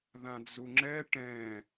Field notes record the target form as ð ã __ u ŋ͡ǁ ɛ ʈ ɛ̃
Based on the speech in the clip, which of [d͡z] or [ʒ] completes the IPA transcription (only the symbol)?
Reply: d͡z